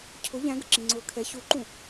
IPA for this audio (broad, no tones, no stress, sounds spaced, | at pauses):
cʰ ʊ ʎ æ̃ ɡ ə̰ ǁ ĩ ŋ͡ǀ ʊː kʰ ɛ ç u ǃ ũ